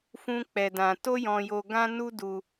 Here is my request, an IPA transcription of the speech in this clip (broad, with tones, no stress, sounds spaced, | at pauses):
f ũ˦ k͡p ɛ˧ d ã˧ t o˦ j ɔ̃˧ j o˧ ɡ ã˦ n u˦ d u˧